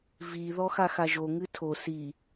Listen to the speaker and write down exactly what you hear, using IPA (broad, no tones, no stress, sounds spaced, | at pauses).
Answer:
v i ð ɔ x a x a ʒ o ŋ ɨ tʰ o s i